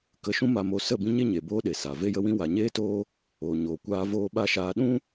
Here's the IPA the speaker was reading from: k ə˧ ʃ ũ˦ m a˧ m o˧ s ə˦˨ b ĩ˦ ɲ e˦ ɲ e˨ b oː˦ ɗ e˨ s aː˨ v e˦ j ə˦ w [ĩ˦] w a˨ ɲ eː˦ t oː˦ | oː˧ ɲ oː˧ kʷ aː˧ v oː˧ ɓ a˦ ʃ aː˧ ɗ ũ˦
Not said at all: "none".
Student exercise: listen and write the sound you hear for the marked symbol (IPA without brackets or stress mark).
ĩ˦